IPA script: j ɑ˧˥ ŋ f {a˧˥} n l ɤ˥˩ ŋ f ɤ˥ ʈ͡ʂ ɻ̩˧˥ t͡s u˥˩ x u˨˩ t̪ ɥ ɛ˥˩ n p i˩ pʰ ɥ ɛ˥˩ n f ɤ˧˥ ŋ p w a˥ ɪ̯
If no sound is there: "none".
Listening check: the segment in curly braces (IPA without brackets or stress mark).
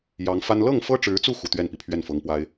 a˥